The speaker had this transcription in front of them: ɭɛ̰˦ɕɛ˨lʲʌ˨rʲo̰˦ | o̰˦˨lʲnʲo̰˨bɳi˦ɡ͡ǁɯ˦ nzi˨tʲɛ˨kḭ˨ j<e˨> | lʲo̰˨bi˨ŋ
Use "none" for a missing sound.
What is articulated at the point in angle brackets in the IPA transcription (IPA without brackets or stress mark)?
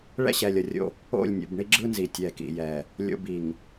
ɛ˨